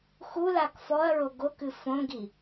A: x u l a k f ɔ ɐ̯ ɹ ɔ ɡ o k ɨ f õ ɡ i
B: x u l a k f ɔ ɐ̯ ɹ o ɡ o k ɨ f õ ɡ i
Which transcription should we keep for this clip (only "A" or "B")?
B